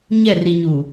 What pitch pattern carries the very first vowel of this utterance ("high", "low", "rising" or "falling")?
falling